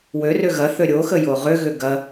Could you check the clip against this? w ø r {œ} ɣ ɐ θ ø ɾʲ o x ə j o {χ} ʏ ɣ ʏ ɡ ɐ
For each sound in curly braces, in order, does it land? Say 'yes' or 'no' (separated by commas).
no, no